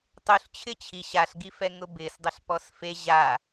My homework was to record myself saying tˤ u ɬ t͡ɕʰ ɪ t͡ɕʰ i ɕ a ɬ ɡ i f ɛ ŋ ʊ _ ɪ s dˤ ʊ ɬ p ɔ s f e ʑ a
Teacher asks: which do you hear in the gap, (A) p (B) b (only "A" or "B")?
B